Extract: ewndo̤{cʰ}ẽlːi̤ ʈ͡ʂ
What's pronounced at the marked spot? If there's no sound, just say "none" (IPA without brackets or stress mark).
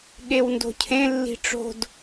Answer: cʰ